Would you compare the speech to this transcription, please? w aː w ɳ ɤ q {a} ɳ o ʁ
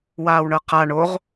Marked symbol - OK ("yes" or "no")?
yes